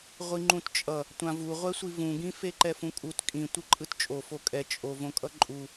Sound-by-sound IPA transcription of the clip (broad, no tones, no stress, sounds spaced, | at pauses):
ʁʷ i ŋ͡ǃ ũ t t͡ʃʼ ʌ | tʷ ã v u ʁʷ ɛ sʷ i v ũ ɡ ĩ f e ǃ ɛ f ũ kʼ u t kʼ ĩ tʷ ɯ ǃʼ ɯ t t͡ʃʼ o f o kʼ ɛ t͡ʃʼ o v õ kʼ ʌ ǃʼ u